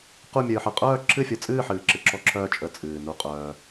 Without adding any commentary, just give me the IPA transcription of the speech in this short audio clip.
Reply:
q u˦˨ mʲ ɨː˨ ħ ɯ˨ qʼ œː˦˨ ǁʰ ɨ˦˨ fʲ ɯ˨ t͡sʼ ɨː˦˨ ħ ɨː˨ ǁ ɨ˨ ǁ ɔ˦ ǁʰ œː˦˨ t͡ʃʼ ə˦ t͡sʼ ɨː˨ n u˦ qʼ œː˦

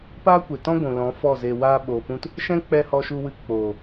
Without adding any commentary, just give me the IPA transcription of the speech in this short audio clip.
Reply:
p aː˦ kʷ e˨ t ɔ̃˦ ɡʷ ũ˨ l ɔ̃˨˦ f ɔ˦˨ z e˧ w aː˧ ɓ oː˨ p ũ˧ t | ʃ ɛ̃˦ k͡p ɛ˧ h ɔ˧ ʃ u˧ w ɨ˧ k͡p oː˨

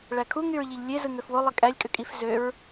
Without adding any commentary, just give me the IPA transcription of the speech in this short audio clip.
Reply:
ɭ æ kʰ u ŋ y ɹ ʎ i ʎ lʲ e z ɯ ŋ ø f w o lˠ i kʼ æ lʲ kʼ ø kʼ i f z ø ɹ

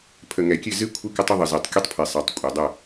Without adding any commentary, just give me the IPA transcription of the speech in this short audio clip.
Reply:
pʰ ə˨ ŋ ɛ˨ kʲ ɨ˦˨ z ɨ˦ kʷʰ ɨ˦ k ə˦ tˤ ə˦ ðˤ ə˨ z i˨ tˤ kʲ ə˦ tˤ pʰ i˨ sˤ ɛ˨ tˤ kʷʼ ɛ˨ dˤ ə˦˨

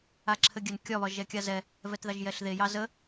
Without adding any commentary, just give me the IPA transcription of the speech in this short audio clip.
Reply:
a ǁʰ ɘ ɡʲ ɘ n kʲ ɒ β ɒ ʒ ɛ kʲ a z ɛ | v ɛ t ð ɑ ʒ j ɛ ɬ ð e j ɑ z ə

